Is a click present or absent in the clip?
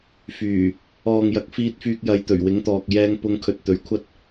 absent